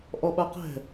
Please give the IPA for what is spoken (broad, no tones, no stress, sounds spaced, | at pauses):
ʔ ɔ ɓ a q ɛ̤